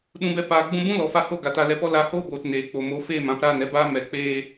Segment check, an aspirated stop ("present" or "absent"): absent